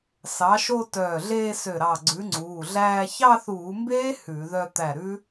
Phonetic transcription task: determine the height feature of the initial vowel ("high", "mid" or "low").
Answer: low